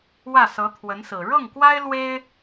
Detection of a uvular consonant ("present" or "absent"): absent